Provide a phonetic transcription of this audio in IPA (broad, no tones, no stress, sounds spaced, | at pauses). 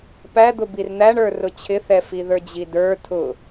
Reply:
p æ d̪ ʊ b i r n̪ æ ɳ ə˞ r ʊ t͡ɕʰ ɪ θ ɛ f i ð ə˞ d͡ʑ i d ə˞ tʰ ʊ